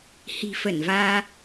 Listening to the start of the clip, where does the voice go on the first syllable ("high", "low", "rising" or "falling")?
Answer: low